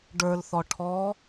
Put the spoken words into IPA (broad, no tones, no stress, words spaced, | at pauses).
ɖə˞lθɔ ʈʰɔ